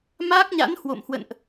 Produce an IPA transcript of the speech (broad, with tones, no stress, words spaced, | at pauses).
maː˦˥k̚ɲa̰˧˥nhwo̰˧˨mhwə̰˧˨nʔ